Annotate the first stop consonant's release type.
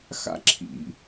click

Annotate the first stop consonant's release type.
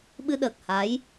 implosive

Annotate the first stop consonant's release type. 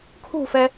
aspirated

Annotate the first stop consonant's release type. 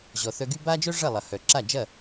plain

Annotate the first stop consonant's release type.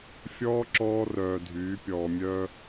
click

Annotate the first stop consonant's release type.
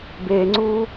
plain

